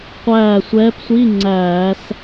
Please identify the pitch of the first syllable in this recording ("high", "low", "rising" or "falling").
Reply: falling